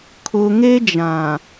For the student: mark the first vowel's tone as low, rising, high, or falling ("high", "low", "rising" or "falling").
low